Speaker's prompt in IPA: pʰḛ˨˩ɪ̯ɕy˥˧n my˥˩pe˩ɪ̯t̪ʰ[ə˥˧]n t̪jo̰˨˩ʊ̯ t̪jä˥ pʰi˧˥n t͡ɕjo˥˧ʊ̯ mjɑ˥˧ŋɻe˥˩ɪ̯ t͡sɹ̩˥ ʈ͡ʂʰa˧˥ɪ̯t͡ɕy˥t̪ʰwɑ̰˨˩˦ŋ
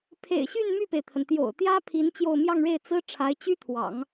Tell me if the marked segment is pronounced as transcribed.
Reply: no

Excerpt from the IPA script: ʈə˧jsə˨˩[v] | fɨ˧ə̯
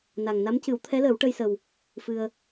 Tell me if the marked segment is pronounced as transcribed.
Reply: no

